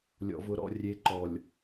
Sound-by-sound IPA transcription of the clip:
lʲ ɔ̰˨ v ʊ˨ ɾ ɔ̰˨ rʲ e˨ ǃ ɔ˨ lʲ

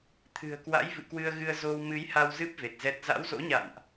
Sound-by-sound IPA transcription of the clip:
t̪ʰ ɨ̤˨˩ ə̯ k w a̰˧˥ j v ɨ̰˧˨ k w ɨ˧ ə̯ ɣ ɨ˧ ə̯ z o˧ w m ɨ˨˦ j h a˧ w z ɨ˦˥ p̚ v e˨˩ t̚ z ɛ˦˥ t̚ z a̰˧˥ w z o̰˧˥ ɲ a̰˧˨ n ʔ

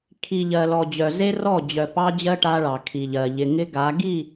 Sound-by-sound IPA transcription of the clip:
kʰ i˨ ʎ ɜ˨ l ɔ˨ d͡ʑ œ˨ z e˦ r ɔ˦˨ d͡ʑ œ˨ p ɑ˦ d͡ʑ ɜ˦ ʈ a˦ ɭ ɑ˨ kʰ i˨ ʎ ɜ˨ ʎ ɪ˨ ŋ ɪ˦ ɡ a˨˦ ɡ i˦˨

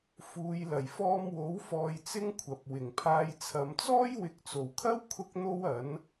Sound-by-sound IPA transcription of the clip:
f uː˨˧ j l ɐ˨˩ j f ɔː˧ m w o˨˥ w f ɔː˧ j t͡s ɪ˥ ŋ kʷʰ ɐ˨ p̚ w ɪ˨˩ ŋ pʰ aː˧ j t͡sʰ ɐ˨˧ m t͡s ɔː˥ j w ɪ˨˥ k̚ t͡s o˨˩ w kʰ ɐ˥ w kʰ ʊ˥ k̚ n̪ o˥ w ɐ˨˥ n

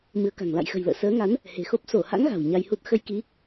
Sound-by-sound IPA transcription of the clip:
m ɨ˨˦ ə̯ k a̤˨˩ ŋ l a̰˧˨ j x ə̤˨˩ j l ə̰ː˧˨ s əː˨˦ ŋ a˨˦ n | h e̤˨˩ x o˦˥ p̚ s o˧˩ h a̰˧˥ ŋ ɣ a̤˨˩ w ɲ a˧ j h u˦˥ t̚ x ə˧ j k i˨˦

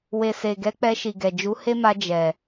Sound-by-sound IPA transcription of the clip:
w e˨ s e˨ ɡ ɛ˨˦ k͡p ɛ˧ ʃ i˨ ɡ ɛ˨ d͡ʒ u˨˦ h e˦ m a˧ d͡ʒ ɛ˨

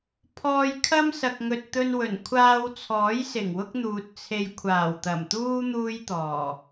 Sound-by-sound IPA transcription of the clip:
pʰ ɔː˧ j kʰ ɐ˥ m s ɐ˨ k̚ ŋ ɵ˨ t̚ t̪ ɵ˧ n w ɵ˨˩ n kʷʰ aː˧ w t͡sʰ ɔː˨˥ j s ɪ˨˩ ŋ w ʊ˥ k̚ n̪ uː˨ t̚ t͡sʰ e˧ j kʷʰ aː˨˩ w t̪ ɐ˨˩ m t̪ uː˥ n̪ uː˥ j t̪ ɔː˨˩

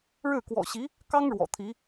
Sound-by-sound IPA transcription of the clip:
ɻ ɻ̩˥˩ k w ɔ̰˨˩ ɕ i˧˥ | k ɑ˥ ŋ ɻ w ɔ̰˨˩ t̪ʰ i˧˥

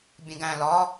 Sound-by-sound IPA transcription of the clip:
bʲ ẽ ɡ æ̃ l ɒ

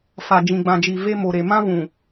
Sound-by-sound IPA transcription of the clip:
f a˨ d͡ʒ ĩ˨ ɡ͡b ã˨ d͡ʒ i˨ v e˦ m o˨ ɾ e˨ m ã˦ v ũ˨

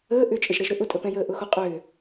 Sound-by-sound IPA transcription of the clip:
əː ʔ ʏ t͡ʃʼ ə ʒ ɾ ɛ ʒ ɾ ʏ ʔ ʊ tʼ ə p ɛ̃ j əː ʔ ʊ x o qʼ ʏː

